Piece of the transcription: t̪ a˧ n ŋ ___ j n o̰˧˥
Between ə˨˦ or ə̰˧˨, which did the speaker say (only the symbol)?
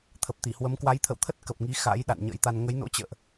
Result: ə˨˦